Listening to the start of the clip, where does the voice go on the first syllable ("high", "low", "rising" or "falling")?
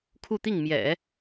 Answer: falling